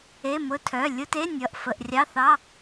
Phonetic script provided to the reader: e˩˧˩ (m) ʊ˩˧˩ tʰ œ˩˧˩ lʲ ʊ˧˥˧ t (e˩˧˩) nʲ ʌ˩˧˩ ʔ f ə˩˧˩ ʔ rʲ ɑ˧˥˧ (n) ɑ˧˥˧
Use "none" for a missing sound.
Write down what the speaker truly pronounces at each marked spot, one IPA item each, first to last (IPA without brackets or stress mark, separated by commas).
m, e˧˥˧, θ